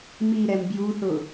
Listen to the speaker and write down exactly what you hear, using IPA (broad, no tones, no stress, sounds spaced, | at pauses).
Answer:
m i ɾ ɛ m b j u θ ʊ